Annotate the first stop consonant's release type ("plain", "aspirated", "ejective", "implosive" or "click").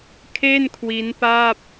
aspirated